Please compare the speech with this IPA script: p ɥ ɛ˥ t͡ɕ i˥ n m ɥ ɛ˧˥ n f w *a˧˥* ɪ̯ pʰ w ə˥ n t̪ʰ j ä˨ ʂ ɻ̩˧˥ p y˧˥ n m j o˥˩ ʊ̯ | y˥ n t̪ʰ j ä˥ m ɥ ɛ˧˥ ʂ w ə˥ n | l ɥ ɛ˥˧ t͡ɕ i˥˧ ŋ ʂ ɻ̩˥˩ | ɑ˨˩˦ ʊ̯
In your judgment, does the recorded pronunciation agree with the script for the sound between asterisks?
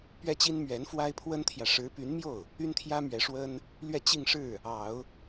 no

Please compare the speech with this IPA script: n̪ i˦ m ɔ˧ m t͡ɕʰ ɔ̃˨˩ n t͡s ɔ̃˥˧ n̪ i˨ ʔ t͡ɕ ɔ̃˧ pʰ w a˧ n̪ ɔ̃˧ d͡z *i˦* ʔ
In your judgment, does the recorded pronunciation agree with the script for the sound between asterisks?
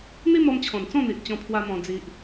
yes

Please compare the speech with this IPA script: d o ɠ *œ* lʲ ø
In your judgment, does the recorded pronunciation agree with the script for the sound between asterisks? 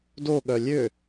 yes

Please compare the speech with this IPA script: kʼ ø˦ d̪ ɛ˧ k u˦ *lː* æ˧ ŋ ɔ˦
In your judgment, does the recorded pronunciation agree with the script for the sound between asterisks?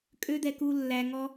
yes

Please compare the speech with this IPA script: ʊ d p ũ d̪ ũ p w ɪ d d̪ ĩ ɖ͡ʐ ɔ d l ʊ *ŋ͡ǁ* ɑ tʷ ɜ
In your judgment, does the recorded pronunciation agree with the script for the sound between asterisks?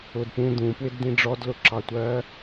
no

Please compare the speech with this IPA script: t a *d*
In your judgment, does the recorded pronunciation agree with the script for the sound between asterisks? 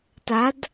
yes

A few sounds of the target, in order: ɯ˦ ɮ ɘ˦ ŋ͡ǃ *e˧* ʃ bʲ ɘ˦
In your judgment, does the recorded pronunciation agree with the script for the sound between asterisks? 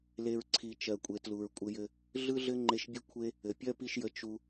yes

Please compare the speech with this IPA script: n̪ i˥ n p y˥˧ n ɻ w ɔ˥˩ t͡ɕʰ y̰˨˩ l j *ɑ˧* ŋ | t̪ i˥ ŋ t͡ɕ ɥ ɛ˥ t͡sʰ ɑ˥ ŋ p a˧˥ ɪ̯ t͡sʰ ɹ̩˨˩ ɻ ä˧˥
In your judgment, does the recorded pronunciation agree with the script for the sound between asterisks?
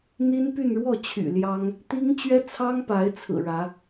no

